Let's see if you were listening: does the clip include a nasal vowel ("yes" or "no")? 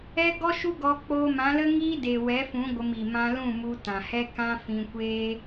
yes